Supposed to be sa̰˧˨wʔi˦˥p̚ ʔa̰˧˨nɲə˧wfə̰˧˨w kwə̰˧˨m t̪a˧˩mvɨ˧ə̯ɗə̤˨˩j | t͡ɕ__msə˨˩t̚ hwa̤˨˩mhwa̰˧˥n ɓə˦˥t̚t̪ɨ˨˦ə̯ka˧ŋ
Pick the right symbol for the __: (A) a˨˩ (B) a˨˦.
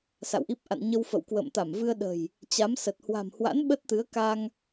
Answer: B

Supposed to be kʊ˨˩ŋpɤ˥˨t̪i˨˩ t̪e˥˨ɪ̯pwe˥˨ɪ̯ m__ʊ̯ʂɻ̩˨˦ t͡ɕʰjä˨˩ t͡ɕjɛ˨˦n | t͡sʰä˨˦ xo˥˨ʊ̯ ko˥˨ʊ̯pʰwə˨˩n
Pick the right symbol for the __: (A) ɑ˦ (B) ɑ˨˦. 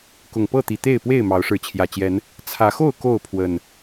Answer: B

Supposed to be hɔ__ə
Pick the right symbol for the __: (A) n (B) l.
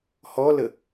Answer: B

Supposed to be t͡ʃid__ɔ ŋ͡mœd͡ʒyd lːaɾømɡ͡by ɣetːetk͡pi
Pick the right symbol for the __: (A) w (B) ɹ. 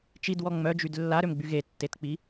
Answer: A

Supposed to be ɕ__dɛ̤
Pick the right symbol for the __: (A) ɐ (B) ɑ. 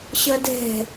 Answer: A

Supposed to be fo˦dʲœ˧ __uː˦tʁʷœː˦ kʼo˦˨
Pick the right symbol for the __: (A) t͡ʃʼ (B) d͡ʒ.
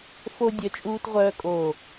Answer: A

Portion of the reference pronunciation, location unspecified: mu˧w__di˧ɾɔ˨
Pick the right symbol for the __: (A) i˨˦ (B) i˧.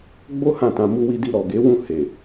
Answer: B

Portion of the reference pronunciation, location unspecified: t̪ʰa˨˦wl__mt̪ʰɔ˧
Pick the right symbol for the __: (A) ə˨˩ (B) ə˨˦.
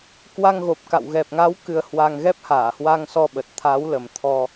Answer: A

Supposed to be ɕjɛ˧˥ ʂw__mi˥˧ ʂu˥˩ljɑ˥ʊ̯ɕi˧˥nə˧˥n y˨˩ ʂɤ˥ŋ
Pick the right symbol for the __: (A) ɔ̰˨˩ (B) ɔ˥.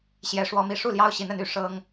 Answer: B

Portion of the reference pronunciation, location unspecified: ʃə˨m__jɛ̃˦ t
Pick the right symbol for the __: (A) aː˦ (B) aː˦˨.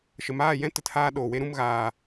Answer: B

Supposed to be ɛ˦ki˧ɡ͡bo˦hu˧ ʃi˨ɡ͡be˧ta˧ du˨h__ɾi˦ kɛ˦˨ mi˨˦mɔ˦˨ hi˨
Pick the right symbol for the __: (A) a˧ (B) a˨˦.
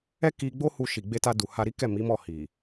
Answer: A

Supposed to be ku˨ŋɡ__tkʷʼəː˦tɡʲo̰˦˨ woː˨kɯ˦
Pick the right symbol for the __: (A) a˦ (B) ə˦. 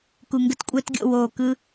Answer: B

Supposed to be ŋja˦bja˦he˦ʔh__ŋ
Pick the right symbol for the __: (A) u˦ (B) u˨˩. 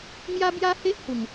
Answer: B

